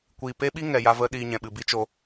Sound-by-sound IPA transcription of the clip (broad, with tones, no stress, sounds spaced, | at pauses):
kʷ iː˨ p e˦ ɓ i˦ ŋ ɛ˨ j a˧ v ə˧ ɗ iː˧ ɲ ɛ̃˨ ɓ ɨ˨ b i˦ t͡ʃ o˧